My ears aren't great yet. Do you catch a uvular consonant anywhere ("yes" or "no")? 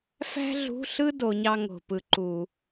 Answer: no